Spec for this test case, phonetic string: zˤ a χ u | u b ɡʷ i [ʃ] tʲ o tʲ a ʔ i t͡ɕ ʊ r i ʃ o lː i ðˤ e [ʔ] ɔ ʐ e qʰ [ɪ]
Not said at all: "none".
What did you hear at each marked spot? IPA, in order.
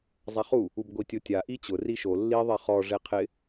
none, χ, ɪ

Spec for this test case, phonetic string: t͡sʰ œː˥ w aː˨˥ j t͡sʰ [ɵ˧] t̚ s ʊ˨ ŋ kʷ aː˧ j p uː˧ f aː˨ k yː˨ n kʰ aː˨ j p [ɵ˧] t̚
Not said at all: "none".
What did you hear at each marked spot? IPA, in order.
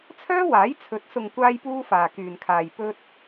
ɵ˨˥, ɵ˧

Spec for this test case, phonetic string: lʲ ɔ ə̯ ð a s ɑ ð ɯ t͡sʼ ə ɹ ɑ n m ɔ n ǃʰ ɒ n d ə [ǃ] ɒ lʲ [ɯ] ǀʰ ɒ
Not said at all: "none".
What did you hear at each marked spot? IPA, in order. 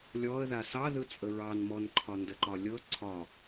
ǃ, ɤ

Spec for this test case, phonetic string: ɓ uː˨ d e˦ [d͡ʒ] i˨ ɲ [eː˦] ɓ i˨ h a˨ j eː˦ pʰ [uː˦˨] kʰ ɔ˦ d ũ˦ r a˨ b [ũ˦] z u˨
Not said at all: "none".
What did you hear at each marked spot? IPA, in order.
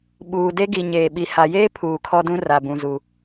ɡ, eː˨, uː˨, ũ˨

